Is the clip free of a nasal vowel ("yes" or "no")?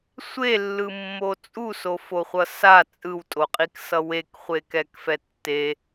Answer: yes